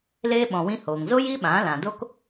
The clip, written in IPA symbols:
l eː˦ ɓ ɔ̃˨ w ĩ˧ h oː˨ ŋ z o˦ j i˦ ɓ ã˨˦ l ã˨ d o˦ k

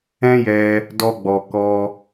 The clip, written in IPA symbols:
ɛ̃˦ j ɛ˧ | d ɔ˧ ɡ͡b ɔ˨ k ɔ˧

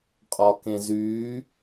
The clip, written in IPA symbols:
qʼ ɒ k ẽ z yː

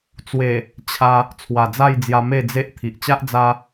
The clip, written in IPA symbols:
t͡s w e˨˩ | t͡ɕʰ a˧ | t͡sʰ w a˨˩ d͡z a˥˧ j d͡z j a˧ m e˥˧ d͡z e˦ ʔ t̪ʰ i˨ ʔ t͡ɕ a˦ ʔ d͡z a˦

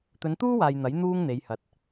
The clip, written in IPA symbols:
t̪ ɵ˨˧ n t̪ uː˥ w aː˨ j n̪ ɐ˨˥ j n̪ uː˥ ŋ n̪ e˨˧ j h ɐ˨ t̚

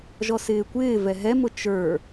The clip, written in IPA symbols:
ʒ ɔ s ɪː kʷ ɪː v ɛ ɦ ɛ m ʊ t͡ʃ ə˞

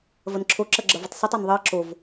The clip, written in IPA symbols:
v ɐ n ǁʰ o ǁ ɐ ɡ͡ǁ ɐ v ɐ tˤ s i tˤ ɜ n ðˤ ɜ ǁ o v

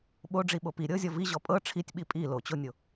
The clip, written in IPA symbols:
ɓ o ɖ͡ʐ i ɓ o p i ɾʲ ɤ zʲ ɔ v i ʑ ɔ pʼ ɤ ʈ͡ʂʰ i tʲ ɓ i pʼ i l o t͡ɕ o nʲ o

